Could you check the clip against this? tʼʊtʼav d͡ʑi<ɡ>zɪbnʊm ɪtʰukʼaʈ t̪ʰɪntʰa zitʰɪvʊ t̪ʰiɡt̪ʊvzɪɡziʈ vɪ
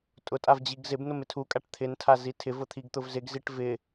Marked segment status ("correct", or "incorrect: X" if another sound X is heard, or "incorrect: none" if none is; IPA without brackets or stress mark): correct